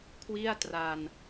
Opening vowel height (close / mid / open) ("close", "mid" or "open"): close